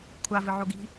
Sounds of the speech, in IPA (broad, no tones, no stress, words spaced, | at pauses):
kʷʰavɨʕo ɡi̤